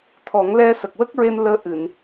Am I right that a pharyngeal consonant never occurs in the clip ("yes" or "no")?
yes